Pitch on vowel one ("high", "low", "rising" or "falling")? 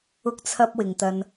high